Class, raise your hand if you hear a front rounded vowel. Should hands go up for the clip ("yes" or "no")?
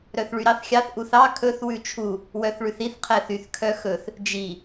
yes